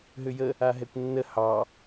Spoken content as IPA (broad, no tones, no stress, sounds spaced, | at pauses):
ɦ ʏ j ə | a ɦ ɛ kʷ nː ə h ɑ